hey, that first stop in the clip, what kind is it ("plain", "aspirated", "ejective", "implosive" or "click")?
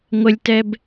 plain